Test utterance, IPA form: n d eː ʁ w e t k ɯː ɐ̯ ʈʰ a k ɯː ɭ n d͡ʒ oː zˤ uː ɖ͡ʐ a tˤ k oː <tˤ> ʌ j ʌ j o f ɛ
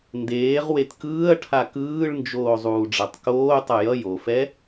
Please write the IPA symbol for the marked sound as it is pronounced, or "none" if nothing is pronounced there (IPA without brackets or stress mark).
tˤ